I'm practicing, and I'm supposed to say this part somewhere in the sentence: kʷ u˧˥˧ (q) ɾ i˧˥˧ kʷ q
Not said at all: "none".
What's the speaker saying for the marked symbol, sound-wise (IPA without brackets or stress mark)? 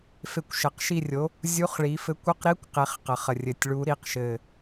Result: q